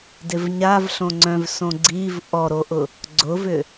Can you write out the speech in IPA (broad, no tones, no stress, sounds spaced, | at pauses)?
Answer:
d ɪ v ɲ a v ɬ õ ŋ͡ǀ œ̃ v s õ ɡ͡ǀ i v ʔ ɔ ɾ o ʔ ʊ | ɡ͡ǀ ʊ v ʏ